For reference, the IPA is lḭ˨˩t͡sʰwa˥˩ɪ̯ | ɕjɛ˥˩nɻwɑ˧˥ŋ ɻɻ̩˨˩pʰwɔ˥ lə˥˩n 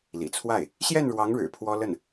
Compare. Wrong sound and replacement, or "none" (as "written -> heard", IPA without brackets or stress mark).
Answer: none